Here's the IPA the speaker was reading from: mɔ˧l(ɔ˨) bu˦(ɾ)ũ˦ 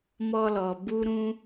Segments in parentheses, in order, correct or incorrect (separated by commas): correct, correct